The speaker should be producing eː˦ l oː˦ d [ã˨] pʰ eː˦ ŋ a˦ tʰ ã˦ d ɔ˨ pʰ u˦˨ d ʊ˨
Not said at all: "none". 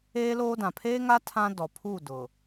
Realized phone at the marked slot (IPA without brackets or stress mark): ã˨